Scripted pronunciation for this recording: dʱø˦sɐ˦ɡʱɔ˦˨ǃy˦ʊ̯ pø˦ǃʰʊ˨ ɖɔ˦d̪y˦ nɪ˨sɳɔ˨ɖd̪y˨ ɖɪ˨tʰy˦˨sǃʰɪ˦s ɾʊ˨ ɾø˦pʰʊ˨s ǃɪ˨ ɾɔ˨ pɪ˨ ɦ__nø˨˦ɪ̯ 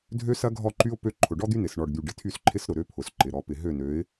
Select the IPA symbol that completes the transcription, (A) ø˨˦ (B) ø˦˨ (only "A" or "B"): B